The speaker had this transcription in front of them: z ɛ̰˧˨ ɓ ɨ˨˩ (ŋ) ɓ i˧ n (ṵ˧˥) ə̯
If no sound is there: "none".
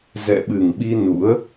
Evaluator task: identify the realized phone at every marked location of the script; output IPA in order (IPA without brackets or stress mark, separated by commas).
ŋ, ṵ˧˥